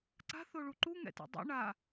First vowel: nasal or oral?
oral